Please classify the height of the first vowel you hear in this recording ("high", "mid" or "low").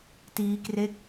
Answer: high